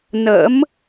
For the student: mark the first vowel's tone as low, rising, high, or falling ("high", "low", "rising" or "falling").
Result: rising